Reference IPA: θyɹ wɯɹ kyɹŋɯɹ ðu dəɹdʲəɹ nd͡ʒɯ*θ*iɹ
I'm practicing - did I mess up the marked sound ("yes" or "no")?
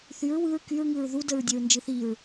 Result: no